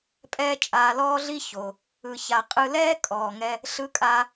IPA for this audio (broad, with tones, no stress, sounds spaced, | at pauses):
pʼ ɛː˥ t͡ʃʼ aː˧ l ɔː˥ ɮ i˥ ç o˩ | ɯ˧ ç a˧ qʼ ɯ˧ l ɛː˥ kʼ ɔː˩ ŋ ɛ˧ | ɬ ɯ˧ kʼ aː˧